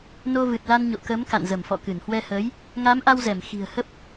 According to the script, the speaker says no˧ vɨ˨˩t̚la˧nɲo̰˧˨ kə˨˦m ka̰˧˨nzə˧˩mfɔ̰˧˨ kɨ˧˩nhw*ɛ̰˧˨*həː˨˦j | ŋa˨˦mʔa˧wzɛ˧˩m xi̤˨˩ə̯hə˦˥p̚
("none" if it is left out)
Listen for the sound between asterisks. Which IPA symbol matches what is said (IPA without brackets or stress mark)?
ɛ˧